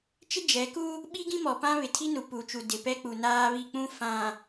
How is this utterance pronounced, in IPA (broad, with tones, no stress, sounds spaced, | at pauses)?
t͡ʃ ɪ˦ d͡ʒ ɛ˨˦ k u˦ | ɓ i˦ ɡ ĩ˦ m ɔ˨ p ã˦ β ɪ˨ tʰ i˦ n u˨ p u˨ t͡ʃ u˨ d ɪ˨ p ɛ˦ k͡p u˨ n aː˦ β i˦˨ k͡p ũ˦ f ã˨